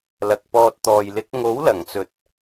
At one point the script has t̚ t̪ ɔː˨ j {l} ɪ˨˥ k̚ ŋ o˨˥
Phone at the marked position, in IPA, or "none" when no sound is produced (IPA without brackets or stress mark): l